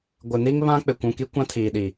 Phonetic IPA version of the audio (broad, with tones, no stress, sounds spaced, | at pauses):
ɡʷ ɪ˨ n i˦ ŋ β ã˦ k͡p ɪ˨ kʷ ũ˨ k i˦ kʷ ã˦ tʰ iː˨ ɗ i˨